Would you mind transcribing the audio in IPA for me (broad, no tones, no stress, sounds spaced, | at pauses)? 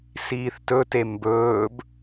s iː θ t ɵ t e m b ɵː b